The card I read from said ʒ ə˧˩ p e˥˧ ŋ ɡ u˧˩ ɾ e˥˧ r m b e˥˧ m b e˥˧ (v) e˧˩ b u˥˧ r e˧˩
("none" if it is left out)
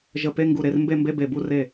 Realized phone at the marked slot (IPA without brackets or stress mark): b